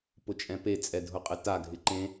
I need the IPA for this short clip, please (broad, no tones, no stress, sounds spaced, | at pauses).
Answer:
p ʊ t͡ʃʼ ɛ̃ p e t͡sʼ ɛ dʱ ʊ qʼ ɪ t a ɡʱ ɪ ǃ ẽ